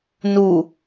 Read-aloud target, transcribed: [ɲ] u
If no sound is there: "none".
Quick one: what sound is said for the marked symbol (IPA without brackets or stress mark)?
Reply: n